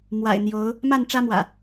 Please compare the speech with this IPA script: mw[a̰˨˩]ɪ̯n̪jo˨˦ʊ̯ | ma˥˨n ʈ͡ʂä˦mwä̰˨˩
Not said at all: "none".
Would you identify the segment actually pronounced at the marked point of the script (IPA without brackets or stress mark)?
a̰˨˩